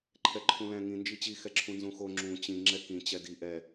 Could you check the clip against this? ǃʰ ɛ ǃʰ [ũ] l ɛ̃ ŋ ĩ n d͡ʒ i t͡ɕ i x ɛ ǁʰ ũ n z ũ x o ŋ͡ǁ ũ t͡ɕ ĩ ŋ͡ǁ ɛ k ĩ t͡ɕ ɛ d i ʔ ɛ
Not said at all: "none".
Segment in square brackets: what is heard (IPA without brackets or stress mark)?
ũ